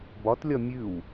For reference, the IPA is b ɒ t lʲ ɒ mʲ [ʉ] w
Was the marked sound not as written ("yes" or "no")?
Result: no